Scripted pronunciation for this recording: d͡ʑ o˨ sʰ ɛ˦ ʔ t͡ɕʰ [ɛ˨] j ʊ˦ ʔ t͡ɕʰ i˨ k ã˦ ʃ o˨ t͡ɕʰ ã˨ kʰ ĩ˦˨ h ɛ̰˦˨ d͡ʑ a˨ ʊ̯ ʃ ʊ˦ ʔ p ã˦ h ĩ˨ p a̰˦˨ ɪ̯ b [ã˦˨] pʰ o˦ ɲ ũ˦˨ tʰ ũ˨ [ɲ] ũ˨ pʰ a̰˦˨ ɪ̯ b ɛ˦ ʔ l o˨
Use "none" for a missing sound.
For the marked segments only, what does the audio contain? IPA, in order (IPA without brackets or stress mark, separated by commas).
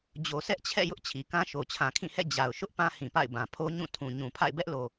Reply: ɛ̰˦˨, ã˨, ɲ